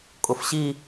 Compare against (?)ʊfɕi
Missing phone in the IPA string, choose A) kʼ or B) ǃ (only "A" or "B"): A